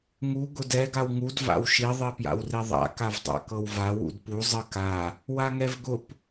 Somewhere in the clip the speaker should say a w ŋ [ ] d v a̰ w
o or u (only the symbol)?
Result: u